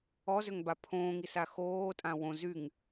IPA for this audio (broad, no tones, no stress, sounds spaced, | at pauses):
ɔ z ø ŋ b a pʰ õː ŋ i s a x oː tʼ ã w õ z y ŋ